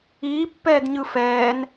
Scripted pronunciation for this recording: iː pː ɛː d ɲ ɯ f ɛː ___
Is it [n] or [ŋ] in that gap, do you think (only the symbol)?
n